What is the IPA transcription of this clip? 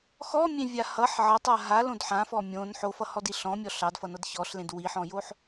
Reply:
x ɔ mʲ ẽ vʲ a h ʌ ħ ʕ ʌ tˤ a ɦ a l õ d ħ ã f ɔ mʲ õ n ħ o f ʌ h ɔ d i ɬ ɔ̃ mʲ ɔ ɬ ɑ d f ʌ n ʌ d ç ɔ ɬ l ẽ d w i ħ ɔ̃ j o ħ

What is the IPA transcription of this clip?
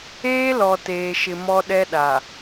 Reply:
eː˦ l ɔ˨ t eː˨ ʃ ɪ˨ m ɔ˦ ɗ ɛ˦ ɗ a˨

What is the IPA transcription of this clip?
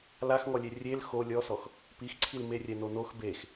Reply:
l a x ŋ ɔ lʲ e rʲ e l x o lʲ ɔ s ɔ x | p i x ǀʰ i l m e rʲ ɛ n o n o x b e x

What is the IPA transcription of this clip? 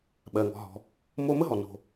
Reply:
ɓ ɜ˩ ŋ ɔ̤˩ ɦ ɔ̤˩ | m o˧ m ə˥ ɦ ɔ˩ n o̤˩

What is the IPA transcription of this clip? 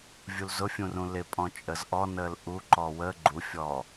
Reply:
vʲ u l z ʊ fʲ ũ r ũ l ɪ pʼ ɔ̃ t͡ʃʼ ə z ʔ ɔ n əː l ʔ u ǃ ɔː w əː ɡ͡ǃ u fʲ ɔː

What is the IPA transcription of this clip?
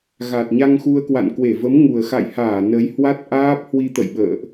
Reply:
ɣ a˨˩ t̚ ɲ a˧ ŋ x u˧ ə̯ k w a̰˧˨ n k w e˧˩ v ə˨˦ m ŋ u˨˩ ə̯ x a̰˧˨ j h aː˧˩ n ə˨˦ j h w a˦˥ t̚ ʔ aː˦˥ p̚ h w i˧ t̪ ə̰˧˨ j ɓ ə̰ː˧˨ ʔ

